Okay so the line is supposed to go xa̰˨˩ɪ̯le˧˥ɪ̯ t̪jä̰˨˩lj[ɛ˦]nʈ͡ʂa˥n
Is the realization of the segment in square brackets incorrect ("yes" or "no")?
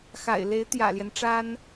no